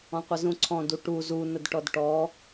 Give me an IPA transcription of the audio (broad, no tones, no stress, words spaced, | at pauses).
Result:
ɔ̃qʷəzũǀʰɔ̃d uʈu zu nədʈɔdʈɔ